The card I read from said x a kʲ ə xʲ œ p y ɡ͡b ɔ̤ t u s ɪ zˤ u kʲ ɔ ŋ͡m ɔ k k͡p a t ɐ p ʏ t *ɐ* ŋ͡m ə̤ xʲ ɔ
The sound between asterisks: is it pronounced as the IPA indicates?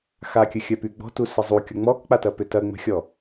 yes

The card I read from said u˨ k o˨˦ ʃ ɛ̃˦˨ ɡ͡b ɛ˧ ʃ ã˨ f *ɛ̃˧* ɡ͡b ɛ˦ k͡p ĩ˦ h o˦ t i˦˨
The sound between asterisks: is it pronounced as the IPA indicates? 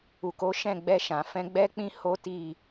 yes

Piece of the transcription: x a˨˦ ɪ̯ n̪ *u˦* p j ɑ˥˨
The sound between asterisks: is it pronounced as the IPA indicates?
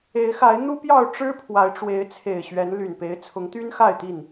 yes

